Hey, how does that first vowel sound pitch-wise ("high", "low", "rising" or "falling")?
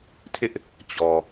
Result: high